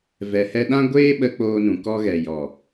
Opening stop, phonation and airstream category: implosive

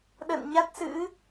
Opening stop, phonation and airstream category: implosive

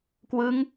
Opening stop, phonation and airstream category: plain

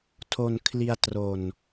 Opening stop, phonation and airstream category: aspirated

